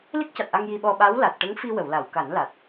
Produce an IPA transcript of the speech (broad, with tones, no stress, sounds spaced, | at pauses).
l i˦˥ k̚ c a˨˩ t̚ ʔ a˧ ŋ j i˧ ɓ ɔ˧ ɓ a˧˥ w l a˨˩ t̚ ʈ ə˧˥ ŋ f i˧ w ə˨˩˨ w l a˨˩˨ w k a˨˩˦ n l a˨˩ t̚